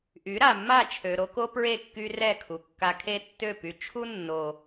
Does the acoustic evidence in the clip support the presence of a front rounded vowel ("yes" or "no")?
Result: yes